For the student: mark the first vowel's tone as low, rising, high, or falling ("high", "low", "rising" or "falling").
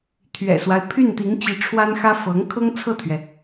low